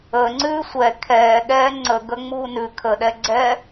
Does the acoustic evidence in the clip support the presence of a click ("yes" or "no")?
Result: yes